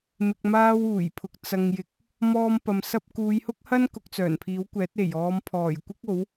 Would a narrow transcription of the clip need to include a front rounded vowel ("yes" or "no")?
yes